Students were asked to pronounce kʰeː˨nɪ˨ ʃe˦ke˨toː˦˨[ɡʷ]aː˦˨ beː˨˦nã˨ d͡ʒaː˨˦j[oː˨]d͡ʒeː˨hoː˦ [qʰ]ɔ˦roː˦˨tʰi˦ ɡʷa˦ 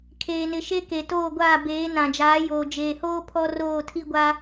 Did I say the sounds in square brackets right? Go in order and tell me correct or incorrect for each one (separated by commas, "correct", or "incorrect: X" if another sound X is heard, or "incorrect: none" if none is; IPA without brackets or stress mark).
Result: correct, correct, incorrect: pʰ